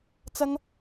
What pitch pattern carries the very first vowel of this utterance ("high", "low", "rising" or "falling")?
high